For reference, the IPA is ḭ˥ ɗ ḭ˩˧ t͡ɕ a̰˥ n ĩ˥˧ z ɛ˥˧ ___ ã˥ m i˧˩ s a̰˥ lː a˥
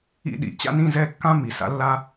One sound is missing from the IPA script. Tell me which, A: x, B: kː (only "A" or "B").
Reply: B